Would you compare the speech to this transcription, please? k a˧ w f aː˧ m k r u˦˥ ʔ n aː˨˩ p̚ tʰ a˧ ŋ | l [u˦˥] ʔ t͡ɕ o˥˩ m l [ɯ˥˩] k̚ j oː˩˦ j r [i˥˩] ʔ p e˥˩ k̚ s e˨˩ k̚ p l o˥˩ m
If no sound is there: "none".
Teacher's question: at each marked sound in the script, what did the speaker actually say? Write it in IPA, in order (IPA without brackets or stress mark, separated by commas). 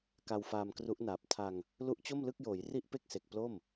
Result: u˦˥, ɯ˥˩, i˥˩